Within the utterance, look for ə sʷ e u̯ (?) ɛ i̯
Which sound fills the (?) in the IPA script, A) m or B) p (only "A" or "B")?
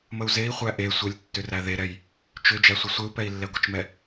B